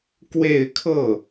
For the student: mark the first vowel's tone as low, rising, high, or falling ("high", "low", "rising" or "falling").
falling